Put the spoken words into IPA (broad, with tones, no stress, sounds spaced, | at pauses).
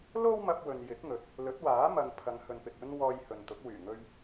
l o˥ w m ɐ˧ p̚ w ɵ˨ n j ɪ˨˥ k̚ ŋ ɵ˨˥ t̚ | l ɵ˨˥ t̚ w aː˨˥ m ɐ˨ ŋ pʰ ɐ˨˧ ŋ h ɵ˨ n p ɪ˨ k̚ ɵ˧ n w ɔː˧ j h ɵ˨ n t̪ ʊ˨˥ k̚ w yː˨˩ ŋ ɵ˧ ɥ